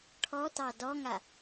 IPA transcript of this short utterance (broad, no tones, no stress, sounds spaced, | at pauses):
ʈʰ ɔ t ɑ d ɔ ŋ a